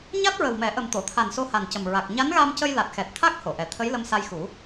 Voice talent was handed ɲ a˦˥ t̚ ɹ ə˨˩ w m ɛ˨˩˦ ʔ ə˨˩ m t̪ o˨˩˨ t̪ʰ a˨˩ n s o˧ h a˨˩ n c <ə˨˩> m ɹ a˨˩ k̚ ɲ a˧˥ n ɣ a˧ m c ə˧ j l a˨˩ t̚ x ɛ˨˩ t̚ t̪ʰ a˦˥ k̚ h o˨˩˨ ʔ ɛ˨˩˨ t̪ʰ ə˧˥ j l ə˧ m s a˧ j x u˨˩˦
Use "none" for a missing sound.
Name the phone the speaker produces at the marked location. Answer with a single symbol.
ə˨˩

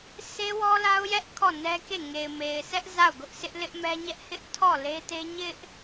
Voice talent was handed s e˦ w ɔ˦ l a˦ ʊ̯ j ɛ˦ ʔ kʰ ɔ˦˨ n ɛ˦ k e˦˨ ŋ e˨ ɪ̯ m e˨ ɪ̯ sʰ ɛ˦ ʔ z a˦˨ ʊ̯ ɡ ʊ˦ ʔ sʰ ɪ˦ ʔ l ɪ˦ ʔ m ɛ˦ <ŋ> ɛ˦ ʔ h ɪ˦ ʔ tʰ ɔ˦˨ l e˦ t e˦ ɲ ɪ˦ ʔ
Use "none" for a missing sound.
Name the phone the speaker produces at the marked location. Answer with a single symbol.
ɲ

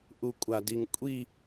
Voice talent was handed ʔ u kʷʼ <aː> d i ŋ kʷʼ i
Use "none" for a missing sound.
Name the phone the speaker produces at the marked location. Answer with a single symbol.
a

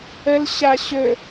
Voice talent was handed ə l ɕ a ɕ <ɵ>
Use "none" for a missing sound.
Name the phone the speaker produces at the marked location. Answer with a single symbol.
ɵ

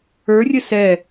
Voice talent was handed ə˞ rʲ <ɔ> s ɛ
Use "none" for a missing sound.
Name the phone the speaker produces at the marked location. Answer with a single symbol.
ə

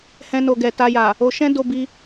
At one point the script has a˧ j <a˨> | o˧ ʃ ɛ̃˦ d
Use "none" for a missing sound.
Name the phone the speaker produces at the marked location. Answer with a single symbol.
a˨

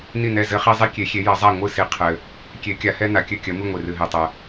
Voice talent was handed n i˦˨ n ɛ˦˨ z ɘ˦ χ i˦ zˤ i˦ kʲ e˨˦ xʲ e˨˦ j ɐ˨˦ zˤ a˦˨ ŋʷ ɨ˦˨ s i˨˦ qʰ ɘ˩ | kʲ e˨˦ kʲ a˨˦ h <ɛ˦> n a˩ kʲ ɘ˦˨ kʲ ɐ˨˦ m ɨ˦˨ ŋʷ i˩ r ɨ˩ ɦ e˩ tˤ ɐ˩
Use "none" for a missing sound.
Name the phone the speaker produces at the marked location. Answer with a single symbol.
ɛ˦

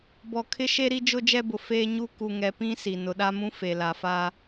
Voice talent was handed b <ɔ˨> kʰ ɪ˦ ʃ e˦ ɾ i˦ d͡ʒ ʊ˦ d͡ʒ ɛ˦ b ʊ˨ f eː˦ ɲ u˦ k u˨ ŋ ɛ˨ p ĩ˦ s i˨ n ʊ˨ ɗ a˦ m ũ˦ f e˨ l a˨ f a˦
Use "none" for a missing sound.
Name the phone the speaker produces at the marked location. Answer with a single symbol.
ɔ˨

